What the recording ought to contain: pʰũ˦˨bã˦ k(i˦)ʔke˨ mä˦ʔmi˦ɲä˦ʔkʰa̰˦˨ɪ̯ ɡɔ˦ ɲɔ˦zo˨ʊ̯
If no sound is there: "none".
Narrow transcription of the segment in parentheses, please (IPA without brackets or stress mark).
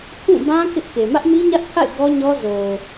ɪ˦